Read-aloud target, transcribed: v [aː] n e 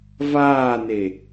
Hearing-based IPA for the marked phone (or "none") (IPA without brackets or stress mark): aː